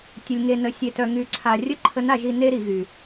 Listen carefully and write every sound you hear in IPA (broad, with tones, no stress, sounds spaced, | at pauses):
tʲ ə˧ lʲ ŋ e˧ n ə˧ sʲ e˧ t œ˧ ŋ y˧ ǀʰ a˧ rʲ ə˥ ǃʰ ə˧˥ n a˧ ʒ i˧ n e˥ ɾ i˩˧ ɣ y˩